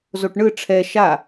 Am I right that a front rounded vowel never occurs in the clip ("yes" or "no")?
yes